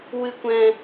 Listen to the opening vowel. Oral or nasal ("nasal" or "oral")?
oral